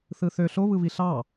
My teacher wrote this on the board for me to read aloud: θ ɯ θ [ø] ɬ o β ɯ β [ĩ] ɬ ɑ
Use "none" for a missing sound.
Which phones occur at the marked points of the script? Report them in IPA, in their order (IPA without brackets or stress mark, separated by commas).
ø, i